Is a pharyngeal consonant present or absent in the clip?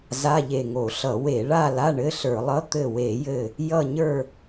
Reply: absent